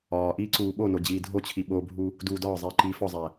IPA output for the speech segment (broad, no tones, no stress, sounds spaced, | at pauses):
ɒː ʔ iː ǀ uː ɓ o n o d͡ʑ iː dʱ o t͡ɕʰ i ɓ o bʱ u | d uː d ɒː zˤ iː ǃ iː f ɒ zˤ æ